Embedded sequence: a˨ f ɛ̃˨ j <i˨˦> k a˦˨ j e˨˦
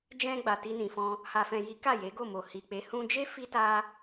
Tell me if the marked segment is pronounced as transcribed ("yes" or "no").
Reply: yes